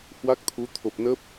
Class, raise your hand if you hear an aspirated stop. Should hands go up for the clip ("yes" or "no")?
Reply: yes